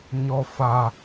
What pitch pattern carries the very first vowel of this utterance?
high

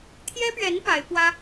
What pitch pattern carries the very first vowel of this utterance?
high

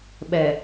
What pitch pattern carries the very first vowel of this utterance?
low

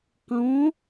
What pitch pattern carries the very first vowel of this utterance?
rising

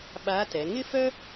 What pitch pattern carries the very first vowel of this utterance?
rising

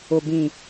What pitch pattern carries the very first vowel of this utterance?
low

